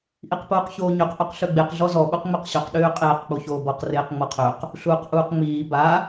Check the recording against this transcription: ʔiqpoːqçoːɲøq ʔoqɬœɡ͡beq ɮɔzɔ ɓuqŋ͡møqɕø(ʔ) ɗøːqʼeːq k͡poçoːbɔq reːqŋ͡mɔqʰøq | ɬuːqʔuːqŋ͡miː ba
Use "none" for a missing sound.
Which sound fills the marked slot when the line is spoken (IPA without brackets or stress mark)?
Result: q